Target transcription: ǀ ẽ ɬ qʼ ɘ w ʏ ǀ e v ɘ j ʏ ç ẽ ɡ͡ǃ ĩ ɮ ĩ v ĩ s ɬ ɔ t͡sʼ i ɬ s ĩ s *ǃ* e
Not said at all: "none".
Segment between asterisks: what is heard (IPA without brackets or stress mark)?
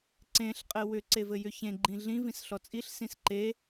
ǃ